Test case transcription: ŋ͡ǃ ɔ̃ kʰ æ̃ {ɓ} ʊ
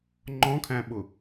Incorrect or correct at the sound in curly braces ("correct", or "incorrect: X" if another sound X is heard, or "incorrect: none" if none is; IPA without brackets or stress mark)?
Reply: correct